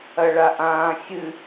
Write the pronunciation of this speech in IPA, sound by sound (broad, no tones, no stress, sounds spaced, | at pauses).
ɐ ɭ a ʔ ãː xʲ ɨ